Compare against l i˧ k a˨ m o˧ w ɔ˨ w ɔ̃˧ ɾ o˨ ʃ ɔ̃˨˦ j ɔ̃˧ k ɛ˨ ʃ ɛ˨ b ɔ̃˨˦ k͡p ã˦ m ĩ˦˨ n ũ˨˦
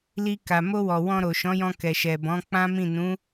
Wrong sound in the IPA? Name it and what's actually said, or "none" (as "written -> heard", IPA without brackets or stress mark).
none